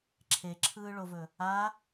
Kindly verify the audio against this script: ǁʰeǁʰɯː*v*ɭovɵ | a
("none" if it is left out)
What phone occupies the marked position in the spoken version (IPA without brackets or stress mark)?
none